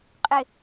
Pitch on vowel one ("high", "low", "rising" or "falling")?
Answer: low